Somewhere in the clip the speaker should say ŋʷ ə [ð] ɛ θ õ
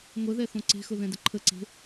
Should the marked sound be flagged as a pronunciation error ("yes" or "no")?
no